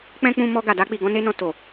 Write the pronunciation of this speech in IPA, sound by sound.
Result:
k͡pɛ̃˦k͡pũ˧mɔ˧ ɡa˨da˧k͡pi˨ɡɔ̃˧ ne˦nɔ̃˧ to˨

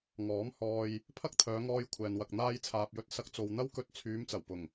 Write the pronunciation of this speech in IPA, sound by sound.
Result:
ŋɔː˨˥m hɔː˧j | pʰɐ˥k̚t̪ʰœː˨˧ŋɔː˧j kʷʰɛː˨nwɐ˨k̚ n̪aː˧jt͡sʰaː˨p̚jɵ˧t̚ sɐ˧k̚t͡so˨wn̪ɐ˥wkɵ˧t̚ t͡sʰyː˨˧mt͡sɐ˨˩wpʊ˨˩ŋ

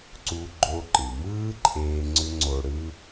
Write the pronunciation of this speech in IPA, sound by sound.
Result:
ǀu˧ɡ͡ǃo˧ǃɯ˩mɯː˥ ǃʼeː˧ ŋ͡ǀʏ˥ŋ͡ǀo˧ɽɯː˥

